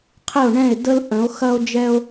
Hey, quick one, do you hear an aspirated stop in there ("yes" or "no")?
yes